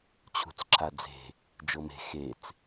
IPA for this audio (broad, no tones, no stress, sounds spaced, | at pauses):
t͡ɕʰ ṳ t͡s ǁʰ a d͡z e̤ | d͡ʒ ɤ m e̤ x e t͡s